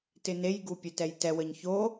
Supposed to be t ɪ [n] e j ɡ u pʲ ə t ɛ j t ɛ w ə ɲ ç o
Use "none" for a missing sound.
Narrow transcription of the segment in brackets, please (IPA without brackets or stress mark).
n